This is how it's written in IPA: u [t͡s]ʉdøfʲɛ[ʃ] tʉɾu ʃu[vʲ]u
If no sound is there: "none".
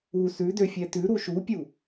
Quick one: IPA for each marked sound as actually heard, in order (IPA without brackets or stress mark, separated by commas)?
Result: s, none, pʲ